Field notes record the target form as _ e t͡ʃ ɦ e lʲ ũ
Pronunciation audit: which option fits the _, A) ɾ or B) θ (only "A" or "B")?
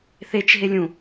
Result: B